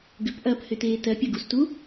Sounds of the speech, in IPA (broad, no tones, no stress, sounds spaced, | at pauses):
ɡ ʏ p ʔ ɐː p h ʏ t eː t ɜ pʲ ɐ ɡ u s t u